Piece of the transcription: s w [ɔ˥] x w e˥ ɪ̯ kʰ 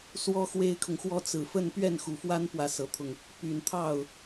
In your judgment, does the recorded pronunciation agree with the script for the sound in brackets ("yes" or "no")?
yes